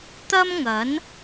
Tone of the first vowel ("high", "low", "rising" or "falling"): high